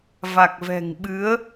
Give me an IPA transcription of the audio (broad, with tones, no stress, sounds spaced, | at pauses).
v a˨˩ k̚ v ɛ̤˨˩ ŋ ɓ ɨ˨˦ ə̯